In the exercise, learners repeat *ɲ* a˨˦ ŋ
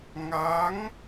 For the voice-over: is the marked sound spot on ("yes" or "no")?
no